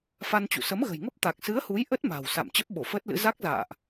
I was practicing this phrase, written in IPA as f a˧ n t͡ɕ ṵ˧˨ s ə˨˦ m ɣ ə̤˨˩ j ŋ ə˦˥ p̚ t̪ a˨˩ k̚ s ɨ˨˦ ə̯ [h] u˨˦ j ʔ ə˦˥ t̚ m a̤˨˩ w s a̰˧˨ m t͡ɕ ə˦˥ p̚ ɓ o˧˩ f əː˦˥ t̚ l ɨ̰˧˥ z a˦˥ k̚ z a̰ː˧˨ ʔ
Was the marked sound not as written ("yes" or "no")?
no